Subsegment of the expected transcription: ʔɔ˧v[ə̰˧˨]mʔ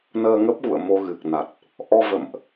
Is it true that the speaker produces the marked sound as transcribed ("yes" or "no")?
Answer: yes